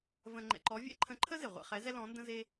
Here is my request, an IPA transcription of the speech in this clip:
və̃˧ ŋ͡ǃɛ̰˧ǃɔ˧˥vʲɛ̰˥ ǃʰə̃˧˥ǃʰə˥ze˩ ʁʷḛ˧χɛ˧˥zɛ˥ lɔ̃˧˥ndə̃˥ze˥

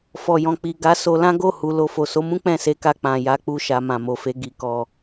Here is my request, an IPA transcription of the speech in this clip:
fɔ˨jɔ̃˨k͡pi˨ ɡa˨˦ so˧lã˦ ɡo˦˨hu˨ lo˧ fo˨so˨˦mũ˦ k͡pɛ̃˦˨se˨˦ka˧ k͡pã˨ ja˨˦k͡pu˧ʃa˨ mã˨mo˨fe˨˦ ɡi˦kɔ˦˨

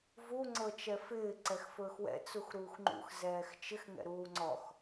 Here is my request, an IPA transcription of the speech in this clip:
vu ŋ͡ǀɤt͡ʃɛfɪː ǀɛxfɵːxwɛ̰ t͡suxɾuːxŋ͡ǃṵx zɛːxt͡ʃɪx ŋɛ̰ɾuːŋ͡ǀɔx

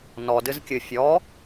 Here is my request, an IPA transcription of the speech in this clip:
nɔ dɨzkʲɨ fʲɔ

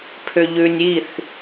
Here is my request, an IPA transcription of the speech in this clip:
pʰʏʎʉnʲiθ

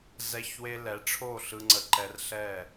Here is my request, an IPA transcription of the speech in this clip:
zɛ˧çwe˧ lɛ˨˦ʈ͡ʂʰo˦˨ ɬɯ˧ŋ͡ǀə˧ ǃɛ˧rɬɛ˦˨

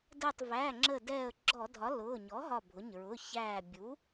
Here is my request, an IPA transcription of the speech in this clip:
dəː˧˩tˤvæ˩˧˩ ŋ͡ǁə˧˩ dɛː˧˩ə̯ɡ͡ǁɔ˧˩˧dʱɒ˩˥ lʊː˩˧˩ ɲɔ˩˥ɦɒ˧˩bʱʊ˩˧˩ɲ ɹʊ˩˧˩ çæː˧˩ bʲu˩˥

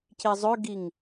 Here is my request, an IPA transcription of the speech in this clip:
cizˤøɡiŋ

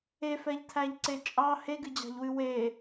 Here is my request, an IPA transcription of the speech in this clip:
efɛʎtʰæʎǀe t͡ʃʼɑ heɡɨd͡ʑɑ̤ʎwɨ we

